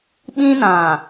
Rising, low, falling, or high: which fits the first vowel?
high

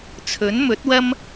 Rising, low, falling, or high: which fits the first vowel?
rising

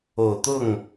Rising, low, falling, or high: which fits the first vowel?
low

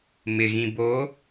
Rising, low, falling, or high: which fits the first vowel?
low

